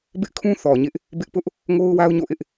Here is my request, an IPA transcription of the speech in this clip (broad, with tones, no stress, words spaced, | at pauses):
bɪ˦ʔkʰũ˦ θɔ˨ɲɪ˦ʔ | bɪ˦ʔpʊ˦ʔ | ŋo˦ʊ̯wa˦ʊ̯ ɲo̰˦˨ʔɪ˦ʔ